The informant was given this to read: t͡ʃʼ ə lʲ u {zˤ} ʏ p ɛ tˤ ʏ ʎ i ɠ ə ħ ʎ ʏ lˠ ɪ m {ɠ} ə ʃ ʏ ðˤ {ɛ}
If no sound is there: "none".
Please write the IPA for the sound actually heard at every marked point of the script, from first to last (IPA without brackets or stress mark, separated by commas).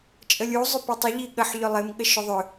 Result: zˤ, ɠ, ʏ